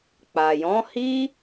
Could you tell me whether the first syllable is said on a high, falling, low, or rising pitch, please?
low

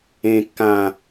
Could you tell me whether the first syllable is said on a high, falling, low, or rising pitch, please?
high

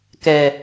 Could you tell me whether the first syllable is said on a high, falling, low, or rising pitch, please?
low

